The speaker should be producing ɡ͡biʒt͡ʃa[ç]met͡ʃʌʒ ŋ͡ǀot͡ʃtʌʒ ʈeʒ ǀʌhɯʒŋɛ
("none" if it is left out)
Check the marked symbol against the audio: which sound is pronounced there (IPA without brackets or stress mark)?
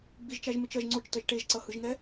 ʒ